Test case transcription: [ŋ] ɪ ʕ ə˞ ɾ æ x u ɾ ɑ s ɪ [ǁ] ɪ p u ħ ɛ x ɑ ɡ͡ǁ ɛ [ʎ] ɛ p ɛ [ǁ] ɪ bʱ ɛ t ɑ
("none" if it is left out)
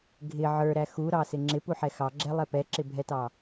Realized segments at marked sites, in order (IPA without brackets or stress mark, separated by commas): ɡʱ, ŋ͡ǁ, lˠ, ǁ